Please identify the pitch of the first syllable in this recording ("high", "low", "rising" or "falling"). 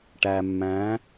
low